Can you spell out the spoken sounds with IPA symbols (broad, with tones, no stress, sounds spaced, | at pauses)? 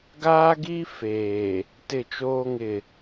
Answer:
ɡ aː˦ ɡ iː˦ f eː˨ | t ɪ˦˨ t͡ʃ oː˦ ŋ ɪ˦˨